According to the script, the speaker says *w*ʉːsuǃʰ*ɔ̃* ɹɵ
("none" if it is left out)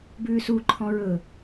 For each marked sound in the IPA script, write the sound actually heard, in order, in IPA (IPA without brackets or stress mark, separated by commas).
b, ɔ̃